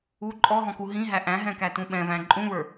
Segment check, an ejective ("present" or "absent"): present